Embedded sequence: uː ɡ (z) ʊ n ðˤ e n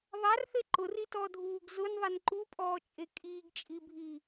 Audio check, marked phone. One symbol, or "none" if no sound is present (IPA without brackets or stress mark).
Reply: z